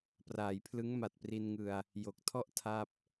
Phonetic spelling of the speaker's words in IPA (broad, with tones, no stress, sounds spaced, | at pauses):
p r aː˩˦ j pʰ l ɯ˦˥ ŋ m a˨˩ t̚ p r i˧ n ŋ ɯ˧ a̯ | j o˨˩ k̚ tʰ ɔ˥˩ ʔ tʰ a˥˩ p̚